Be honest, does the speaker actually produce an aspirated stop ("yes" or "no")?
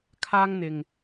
yes